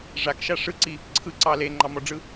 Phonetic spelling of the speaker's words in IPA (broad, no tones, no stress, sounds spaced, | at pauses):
ʐ a k ʃ a ʂ ɯ ǀ i | ǀʰ ɯ ǀ ɑ l e ŋ͡ǃ ɑ m ɔ ɖ͡ʐ ɯ